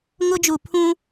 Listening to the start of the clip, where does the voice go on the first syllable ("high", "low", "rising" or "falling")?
high